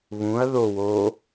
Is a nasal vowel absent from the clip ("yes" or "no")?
no